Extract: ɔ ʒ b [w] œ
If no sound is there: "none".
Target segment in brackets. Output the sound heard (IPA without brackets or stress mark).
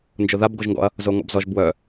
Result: w